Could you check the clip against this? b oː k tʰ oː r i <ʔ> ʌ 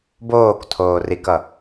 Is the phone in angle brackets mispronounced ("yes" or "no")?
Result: yes